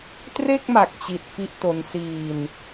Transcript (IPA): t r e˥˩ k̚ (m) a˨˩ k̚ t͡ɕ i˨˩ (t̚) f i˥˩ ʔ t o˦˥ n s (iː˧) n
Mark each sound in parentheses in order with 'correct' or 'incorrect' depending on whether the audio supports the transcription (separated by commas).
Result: correct, correct, correct